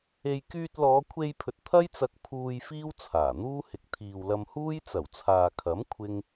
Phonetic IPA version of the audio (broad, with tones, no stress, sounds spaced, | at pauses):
e˧ j k yː˧ t̚ l ɔː˨˧ kʷʰ e˧ j pʰ ɵ˨ t̚ t̪ʰ ɐ˥ j t͡s ɐ˧ k̚ pʰ uː˧ j f iː˥ w t͡sʰ aː˨˩ n̪ uː˥ h ɪ˨ k̚ t̪ʰ iː˨ w l ɐ˧ m h uː˥ j t͡s ɐ˨˩ w t͡sʰ aː˨ kʰ ɐ˨˥ m kʷʰ ɪ˥ ŋ